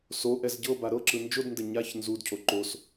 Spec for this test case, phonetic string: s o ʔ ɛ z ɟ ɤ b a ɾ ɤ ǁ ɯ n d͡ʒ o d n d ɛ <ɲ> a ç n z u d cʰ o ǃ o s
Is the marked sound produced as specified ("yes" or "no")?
yes